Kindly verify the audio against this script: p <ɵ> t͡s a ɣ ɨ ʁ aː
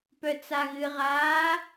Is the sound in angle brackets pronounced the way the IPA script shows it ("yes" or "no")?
no